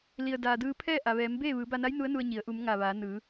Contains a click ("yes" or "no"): no